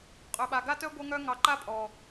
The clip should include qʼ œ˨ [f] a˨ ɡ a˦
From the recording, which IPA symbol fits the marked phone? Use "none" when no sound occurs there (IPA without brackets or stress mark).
ɓ